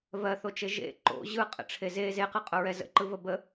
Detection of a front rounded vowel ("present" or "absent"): absent